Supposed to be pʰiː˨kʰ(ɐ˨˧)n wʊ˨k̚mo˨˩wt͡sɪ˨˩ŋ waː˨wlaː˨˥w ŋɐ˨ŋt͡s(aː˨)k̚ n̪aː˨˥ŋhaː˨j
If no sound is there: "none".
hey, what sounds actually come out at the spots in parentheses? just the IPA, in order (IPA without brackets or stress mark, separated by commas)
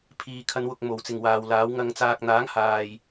ɐ˨˧, aː˨